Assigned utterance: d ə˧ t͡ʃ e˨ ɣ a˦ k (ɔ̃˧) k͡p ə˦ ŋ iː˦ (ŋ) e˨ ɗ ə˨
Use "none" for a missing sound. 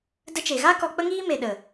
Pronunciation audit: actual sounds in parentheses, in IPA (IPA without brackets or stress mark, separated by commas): ɔ˧, m